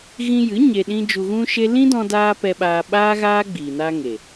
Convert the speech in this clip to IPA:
ɣ ĩ˧ j ɨ˨˦ ɲ e˧ ɗ ĩ˦ d͡ʒ u˧ ɣ ũ˦ ʃ e˦ l ĩ˦ d ɔ̃˧ d aː˧ p ɛ˧ ɓ aː˧ ɓ aː˦ ɣ aː˦ ɡ͡b iː˨ n a˧ ŋ e˨

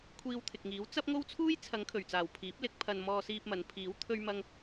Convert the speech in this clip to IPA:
kʷʰ iː˧ w t̪ʰ ɪ˨ k̚ ŋ iː˨˥ w t͡s ɐ˥ p̚ ŋ o˥ w t͡sʰ uː˥ j t͡sʰ ɐ˨˧ ŋ kʰ ɵ˨˩ ɥ t͡s aː˨˩ w pʰ iː˨˥ p̚ l ɪ˨˥ k̚ pʰ ɐ˧ n m ɔː˧ s iː˧ p̚ m ɐ˨˧ n pʰ iː˨˥ w t̪ʰ ɵ˥ ɥ m ɐ˥ ŋ

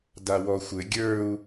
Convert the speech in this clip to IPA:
d a w ɔ xʷ ɘ ɡʲ ə˞ u̯

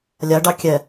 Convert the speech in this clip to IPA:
lʲ a ɖ ɑ kʲ ɛ

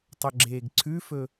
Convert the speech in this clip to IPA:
tˤ ɵ ɡ͡ǁ eː ɡ ǀʰ ʉ f ɵ

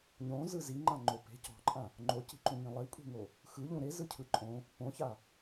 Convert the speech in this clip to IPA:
ɲ õ z ɯ z i ŋ͡ǃ ã ŋ͡ǃ o p e̤ c ɔ̤ ǃʼ ã | ŋ͡ǃ o c i̤ ǃ ũ ŋ ĩ lˠ i kʷʼ i̤ ŋ o | x ɯ ʎ ũ ɾ e z ɯ cʰ ɯ ǃʼ õ | p õ ç a

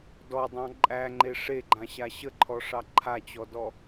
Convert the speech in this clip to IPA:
d ɔ dˤ ɑ̃ ǃʼ æ ŋ͡ǃ e ʂ e ɡ͡ǃ ã ɕ a ɕ ə ǃʰ ɔ ʂ ɑ ǃʰ a t͡ɕ ɔ d ɔ

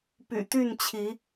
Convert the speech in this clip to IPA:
p y̰˨˩ t̪ y˥˨ n t͡ɕʰ i˨˦

